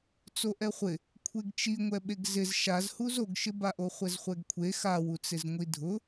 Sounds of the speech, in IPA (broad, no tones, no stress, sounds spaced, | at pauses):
t͡s o ʔ ɛ χʷ ɪ | kʷʰ e ɡ t͡ʃ i ŋʷ ɛ ɓ e ɡ z ɪ z ʃ a z h u z o ɡ ʃ ɪ b a ʔ o χʷ ɛ z χʷ ɛ ɡ kʷʰ e x a w u t͡s ɪ z ŋʷ i dʱ ʊ